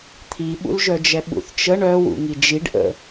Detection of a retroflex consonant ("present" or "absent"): present